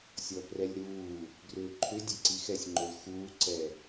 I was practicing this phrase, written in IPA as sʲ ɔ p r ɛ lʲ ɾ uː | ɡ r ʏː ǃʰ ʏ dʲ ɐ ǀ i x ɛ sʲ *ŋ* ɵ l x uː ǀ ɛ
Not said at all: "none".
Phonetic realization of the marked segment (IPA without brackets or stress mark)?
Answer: ŋ͡ǃ